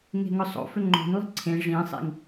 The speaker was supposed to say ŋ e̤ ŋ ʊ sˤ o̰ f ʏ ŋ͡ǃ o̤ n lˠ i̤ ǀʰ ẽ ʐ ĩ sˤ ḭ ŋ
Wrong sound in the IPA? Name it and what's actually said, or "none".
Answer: none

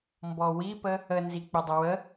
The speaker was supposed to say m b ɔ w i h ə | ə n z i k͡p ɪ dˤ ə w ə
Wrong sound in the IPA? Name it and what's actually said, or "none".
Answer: h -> p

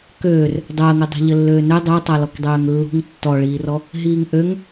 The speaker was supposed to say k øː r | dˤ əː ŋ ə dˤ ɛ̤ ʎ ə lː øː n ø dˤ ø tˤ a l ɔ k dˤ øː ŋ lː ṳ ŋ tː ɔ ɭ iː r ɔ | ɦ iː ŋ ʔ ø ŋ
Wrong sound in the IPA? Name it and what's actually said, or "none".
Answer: none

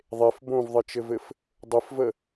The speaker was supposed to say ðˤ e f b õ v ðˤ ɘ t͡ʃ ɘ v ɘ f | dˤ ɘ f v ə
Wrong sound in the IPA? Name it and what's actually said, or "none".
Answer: none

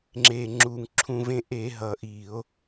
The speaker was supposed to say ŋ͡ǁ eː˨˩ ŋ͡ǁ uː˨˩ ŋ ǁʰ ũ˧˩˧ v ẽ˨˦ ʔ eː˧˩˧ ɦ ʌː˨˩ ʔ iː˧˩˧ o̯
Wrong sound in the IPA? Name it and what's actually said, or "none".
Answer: none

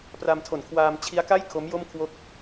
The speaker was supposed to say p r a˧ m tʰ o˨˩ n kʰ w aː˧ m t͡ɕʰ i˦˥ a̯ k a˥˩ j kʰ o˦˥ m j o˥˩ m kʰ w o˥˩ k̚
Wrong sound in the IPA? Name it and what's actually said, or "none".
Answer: none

